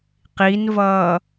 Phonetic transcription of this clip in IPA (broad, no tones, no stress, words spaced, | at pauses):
qinvʌː